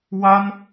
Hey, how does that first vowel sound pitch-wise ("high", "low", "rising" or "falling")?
high